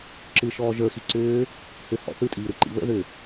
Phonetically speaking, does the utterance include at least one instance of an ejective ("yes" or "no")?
yes